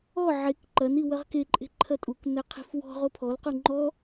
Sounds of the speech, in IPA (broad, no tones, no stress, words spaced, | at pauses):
ɔ ʕek ǃɐni wɐʁkeǃʼe̤ ǃʰɐtʼuknɛ qʰi̤fwɔ̤ ʁopʰɔlqu ŋ͡ǃɔ